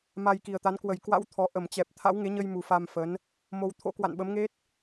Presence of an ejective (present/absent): absent